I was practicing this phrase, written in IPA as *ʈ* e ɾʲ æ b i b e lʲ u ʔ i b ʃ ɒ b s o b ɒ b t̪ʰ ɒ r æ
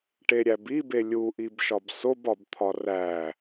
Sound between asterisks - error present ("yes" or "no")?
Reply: no